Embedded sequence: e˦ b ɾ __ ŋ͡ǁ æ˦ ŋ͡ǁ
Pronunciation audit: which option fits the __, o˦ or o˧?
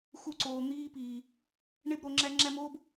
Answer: o˧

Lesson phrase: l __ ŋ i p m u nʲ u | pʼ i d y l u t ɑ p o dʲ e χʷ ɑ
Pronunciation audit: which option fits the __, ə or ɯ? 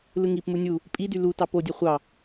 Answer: ɯ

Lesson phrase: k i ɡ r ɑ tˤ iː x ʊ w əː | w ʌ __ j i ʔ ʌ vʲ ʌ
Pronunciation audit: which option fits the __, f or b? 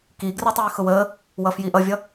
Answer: f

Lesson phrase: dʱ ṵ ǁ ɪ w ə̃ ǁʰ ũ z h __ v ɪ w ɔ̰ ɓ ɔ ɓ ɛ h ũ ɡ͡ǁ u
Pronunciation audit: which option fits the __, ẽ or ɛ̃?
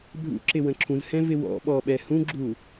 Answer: ɛ̃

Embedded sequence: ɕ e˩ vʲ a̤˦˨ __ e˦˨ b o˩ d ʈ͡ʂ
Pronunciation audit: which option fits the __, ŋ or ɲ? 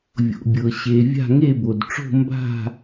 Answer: ŋ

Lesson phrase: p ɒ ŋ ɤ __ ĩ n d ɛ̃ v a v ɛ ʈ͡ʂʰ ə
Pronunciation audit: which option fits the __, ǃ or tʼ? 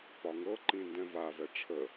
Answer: ǃ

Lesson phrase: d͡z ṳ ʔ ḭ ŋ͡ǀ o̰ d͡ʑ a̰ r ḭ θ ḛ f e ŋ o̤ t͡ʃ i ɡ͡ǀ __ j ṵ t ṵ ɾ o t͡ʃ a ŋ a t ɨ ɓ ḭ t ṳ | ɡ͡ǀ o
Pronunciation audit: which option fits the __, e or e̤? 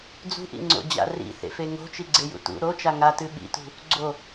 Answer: e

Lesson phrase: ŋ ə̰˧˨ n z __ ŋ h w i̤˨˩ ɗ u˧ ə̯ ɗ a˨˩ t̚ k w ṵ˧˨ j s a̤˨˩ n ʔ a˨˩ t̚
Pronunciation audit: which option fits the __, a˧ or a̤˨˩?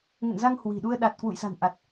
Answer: a˧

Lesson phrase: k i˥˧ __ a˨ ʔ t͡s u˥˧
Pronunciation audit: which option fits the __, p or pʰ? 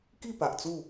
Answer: p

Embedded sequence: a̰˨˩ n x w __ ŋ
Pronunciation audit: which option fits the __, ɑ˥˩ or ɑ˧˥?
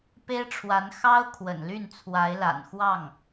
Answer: ɑ˥˩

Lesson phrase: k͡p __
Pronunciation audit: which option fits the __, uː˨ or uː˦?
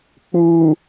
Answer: uː˨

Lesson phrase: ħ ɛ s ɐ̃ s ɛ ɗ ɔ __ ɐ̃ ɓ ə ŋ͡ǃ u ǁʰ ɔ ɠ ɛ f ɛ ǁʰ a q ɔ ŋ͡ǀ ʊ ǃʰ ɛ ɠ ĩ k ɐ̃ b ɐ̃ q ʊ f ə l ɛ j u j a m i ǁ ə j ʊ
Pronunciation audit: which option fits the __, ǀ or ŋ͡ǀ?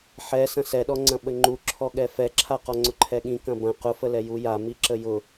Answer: ŋ͡ǀ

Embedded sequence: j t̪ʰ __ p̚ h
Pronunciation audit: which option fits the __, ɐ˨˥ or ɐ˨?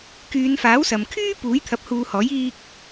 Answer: ɐ˨˥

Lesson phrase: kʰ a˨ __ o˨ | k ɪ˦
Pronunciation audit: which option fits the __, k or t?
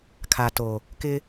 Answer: t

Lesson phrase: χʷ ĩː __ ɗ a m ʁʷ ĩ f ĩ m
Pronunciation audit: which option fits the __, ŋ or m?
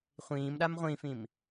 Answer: m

